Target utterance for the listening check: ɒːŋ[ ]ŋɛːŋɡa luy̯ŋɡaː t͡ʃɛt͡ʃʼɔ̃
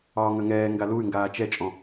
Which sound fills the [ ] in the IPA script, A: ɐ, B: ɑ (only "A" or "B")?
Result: A